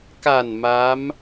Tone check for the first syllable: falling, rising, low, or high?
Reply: low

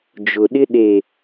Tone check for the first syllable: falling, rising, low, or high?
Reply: low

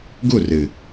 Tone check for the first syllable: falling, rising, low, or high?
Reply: falling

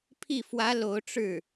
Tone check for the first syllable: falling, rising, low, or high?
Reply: falling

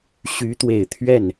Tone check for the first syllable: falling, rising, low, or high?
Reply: rising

